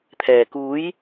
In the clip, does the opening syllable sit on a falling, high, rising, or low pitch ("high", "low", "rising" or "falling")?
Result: low